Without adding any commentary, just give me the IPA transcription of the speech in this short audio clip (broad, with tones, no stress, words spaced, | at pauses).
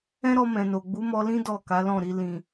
ɛ̃˦ɾɔ˧ mɛ̃˨no˨ ɡ͡bu˨˦mɔ˧lĩ˦ dɔ˦˨ ka˨˦lɔ̃˦˨ɾi˧ lĩ˨